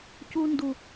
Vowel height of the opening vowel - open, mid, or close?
close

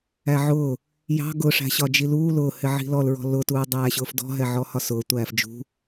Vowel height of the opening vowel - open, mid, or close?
open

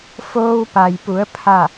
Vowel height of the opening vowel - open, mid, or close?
mid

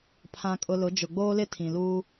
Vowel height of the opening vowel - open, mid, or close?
open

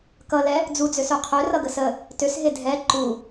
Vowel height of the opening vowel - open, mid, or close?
mid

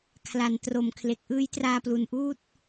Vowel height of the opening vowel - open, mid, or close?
open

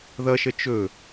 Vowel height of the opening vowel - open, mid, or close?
mid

